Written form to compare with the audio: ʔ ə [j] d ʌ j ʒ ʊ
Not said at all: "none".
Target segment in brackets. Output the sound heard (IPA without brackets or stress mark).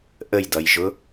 j